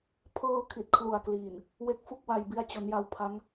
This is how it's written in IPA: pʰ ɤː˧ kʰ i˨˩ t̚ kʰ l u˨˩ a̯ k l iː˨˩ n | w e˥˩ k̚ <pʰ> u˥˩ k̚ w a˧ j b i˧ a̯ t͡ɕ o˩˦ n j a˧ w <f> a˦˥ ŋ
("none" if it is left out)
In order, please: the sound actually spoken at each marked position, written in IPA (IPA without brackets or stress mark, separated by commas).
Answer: f, pʰ